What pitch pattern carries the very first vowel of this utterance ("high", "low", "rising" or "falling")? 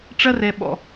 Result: high